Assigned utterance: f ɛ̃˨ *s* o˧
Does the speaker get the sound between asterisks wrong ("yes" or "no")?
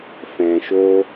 yes